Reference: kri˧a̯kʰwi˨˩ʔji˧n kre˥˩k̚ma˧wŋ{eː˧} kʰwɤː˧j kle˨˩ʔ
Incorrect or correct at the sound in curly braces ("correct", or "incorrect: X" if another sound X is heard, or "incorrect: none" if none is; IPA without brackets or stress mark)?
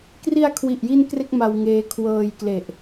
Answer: correct